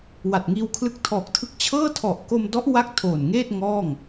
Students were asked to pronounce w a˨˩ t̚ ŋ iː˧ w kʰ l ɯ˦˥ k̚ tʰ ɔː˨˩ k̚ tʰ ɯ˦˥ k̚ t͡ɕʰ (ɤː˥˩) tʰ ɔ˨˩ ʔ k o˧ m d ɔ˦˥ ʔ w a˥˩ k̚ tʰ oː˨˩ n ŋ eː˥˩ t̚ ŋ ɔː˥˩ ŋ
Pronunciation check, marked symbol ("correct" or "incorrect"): correct